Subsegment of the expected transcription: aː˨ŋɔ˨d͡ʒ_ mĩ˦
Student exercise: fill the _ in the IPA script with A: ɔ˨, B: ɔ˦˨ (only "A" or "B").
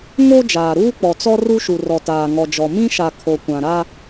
A